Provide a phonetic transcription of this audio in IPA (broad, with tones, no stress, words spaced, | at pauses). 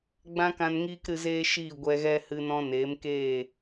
ɡ͡bã˦kã˧nŋiː˦k ɾɨ˧zeː˦ʃiː˦˨ ɡʷɛ˧ɣɛ˦ hɨ˧nɔ̃˧neː˨˦mkeː˦˨